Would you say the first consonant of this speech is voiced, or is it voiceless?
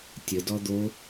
voiceless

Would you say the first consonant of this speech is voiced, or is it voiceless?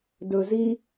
voiced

